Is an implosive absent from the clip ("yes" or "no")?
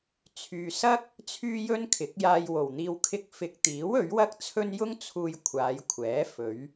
yes